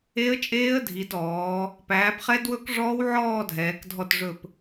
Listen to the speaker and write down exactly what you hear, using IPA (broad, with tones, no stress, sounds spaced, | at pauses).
e˦˥ ə̯ t͡ʃʼ eː˦˥ ə̯ dʱ i˨˦ d ɔː˨˦ | p æː˨˦ p χ ɛ˦˥ d w ɵ˦˥ k ʐ ɔː˦˥ w ʕ ɔː˥˧ dʱ ɛː˨˦ k dʱ ɔ˥˧ t ʐ ɵ˥˧ p